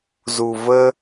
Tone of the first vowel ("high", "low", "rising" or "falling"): low